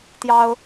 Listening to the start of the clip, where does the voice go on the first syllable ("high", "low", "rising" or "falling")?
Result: high